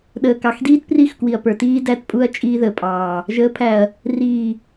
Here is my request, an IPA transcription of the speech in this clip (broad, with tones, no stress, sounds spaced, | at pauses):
ɗ əː˨ k ɑ˨ x d iː˦ t p r i˦˨ x k w i˨ ɐ̯ p ə˞˨ t iː˦ d æ˦˨ t pʼ u˦ ɐ̯ t͡ʃʼ iː˦ ð əː˨ pʼ ɑː˨ | ʒ əː˨˦ pʰ æ˨ ɐ̯ | r iː˨